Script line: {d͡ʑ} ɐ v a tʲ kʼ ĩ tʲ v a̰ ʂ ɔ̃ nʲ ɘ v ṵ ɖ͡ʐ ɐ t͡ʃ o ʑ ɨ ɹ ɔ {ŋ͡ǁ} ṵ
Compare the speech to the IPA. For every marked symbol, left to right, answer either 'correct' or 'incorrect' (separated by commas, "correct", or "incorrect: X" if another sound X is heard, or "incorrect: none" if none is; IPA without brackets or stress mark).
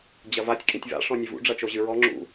correct, correct